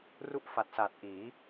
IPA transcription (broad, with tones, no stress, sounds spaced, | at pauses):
r u˥˩ ʔ f a˨˩ t̚ s a˨˩ t̚ ʔ iː˩˦